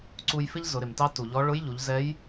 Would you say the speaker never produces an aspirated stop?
yes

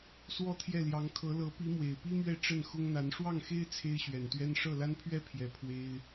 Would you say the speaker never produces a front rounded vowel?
yes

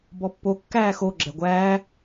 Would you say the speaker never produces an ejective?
yes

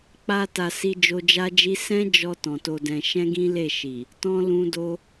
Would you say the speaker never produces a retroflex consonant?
yes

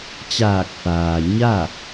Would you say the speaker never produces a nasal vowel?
yes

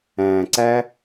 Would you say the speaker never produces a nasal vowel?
no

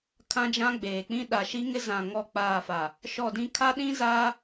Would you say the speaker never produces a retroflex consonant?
yes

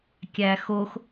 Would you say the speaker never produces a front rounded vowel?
yes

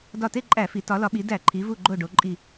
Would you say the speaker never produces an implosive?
no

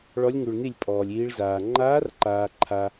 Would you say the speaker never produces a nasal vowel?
yes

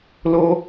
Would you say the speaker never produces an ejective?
yes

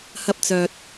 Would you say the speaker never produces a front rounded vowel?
no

